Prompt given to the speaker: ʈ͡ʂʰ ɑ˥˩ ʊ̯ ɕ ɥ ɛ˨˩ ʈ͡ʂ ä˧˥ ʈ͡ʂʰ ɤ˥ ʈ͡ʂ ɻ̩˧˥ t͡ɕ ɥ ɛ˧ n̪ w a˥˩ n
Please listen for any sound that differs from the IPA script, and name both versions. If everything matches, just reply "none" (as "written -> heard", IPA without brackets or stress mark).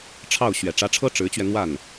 none